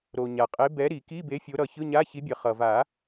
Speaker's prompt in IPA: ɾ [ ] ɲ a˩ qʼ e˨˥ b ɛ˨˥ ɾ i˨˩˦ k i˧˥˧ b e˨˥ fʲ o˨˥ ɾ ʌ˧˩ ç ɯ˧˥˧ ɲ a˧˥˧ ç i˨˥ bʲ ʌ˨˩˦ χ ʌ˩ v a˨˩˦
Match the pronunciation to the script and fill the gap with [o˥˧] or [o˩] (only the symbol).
o˩